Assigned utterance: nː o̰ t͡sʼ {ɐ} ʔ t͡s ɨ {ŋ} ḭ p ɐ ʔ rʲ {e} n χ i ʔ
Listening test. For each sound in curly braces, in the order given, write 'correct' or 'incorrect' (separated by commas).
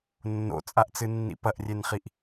incorrect, incorrect, correct